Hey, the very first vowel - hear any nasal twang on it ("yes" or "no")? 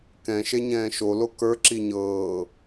yes